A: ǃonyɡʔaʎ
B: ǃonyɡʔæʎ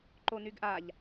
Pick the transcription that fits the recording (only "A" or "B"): A